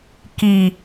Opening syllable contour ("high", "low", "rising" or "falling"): low